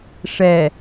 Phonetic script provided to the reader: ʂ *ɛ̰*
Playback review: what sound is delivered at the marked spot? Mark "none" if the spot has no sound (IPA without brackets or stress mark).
ɛ